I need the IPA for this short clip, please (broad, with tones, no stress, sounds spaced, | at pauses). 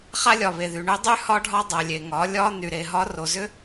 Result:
χ a˦ lʲ ɒ˨ β e˨ ð y˨ ɳ ʏ˦ dˤ y˦ h ɒ˦ ɖʱ ɒ˦ dˤ a˨ lʲ e˨ ŋ ɒ˨˦ lʲ ɒ˦ n y˨ ɾ e˨ ɦ ɒ˦ r o˨ z ʏ˦